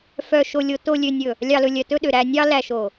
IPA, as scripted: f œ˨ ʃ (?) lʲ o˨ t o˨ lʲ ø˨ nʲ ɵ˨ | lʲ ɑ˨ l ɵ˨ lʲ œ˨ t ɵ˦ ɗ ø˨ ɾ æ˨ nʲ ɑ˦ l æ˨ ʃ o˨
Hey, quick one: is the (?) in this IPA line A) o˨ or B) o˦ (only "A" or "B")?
A